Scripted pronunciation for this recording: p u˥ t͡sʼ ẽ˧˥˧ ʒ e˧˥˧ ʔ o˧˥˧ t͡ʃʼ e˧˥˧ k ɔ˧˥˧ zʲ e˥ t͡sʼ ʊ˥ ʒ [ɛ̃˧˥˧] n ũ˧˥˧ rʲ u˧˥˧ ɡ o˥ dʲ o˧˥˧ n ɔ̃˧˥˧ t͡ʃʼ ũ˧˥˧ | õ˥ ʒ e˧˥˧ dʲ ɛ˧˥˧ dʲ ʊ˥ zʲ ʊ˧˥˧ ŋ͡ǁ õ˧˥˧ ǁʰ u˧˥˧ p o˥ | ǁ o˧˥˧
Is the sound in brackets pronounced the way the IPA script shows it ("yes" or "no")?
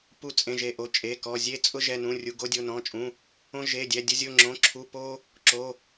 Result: no